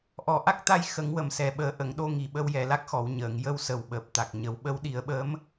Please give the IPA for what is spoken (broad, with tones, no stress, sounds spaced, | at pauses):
ʔ ɔ˨˩ ʔ a˦˥ k̚ t̪ a˧ j x ə˨˩˦ ŋ w ə˨˩ m s ɛ˨˩ ɓ əː˨˩˦ ʔ ə˨˩˨ ŋ ɗ o˧ ŋ i˨˩ ɓ ə˧ w j ɛ˨˩ l a˦˥ k̚ x ɔ˨˩˨ w ɲ əː˨˩˨ ŋ j ə˧ w s ə˨˩ w ɓ əː˨˩ p̚ t̪ a˨˩ k̚ ɲ ə˨˩˦ w ɓ ə˧˥ w ɗ i˨˩˦ ə̯ ɓ əː˧˥ m